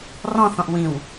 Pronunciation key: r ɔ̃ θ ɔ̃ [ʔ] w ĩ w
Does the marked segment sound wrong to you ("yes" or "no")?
no